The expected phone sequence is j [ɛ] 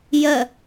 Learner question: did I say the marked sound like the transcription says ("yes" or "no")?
no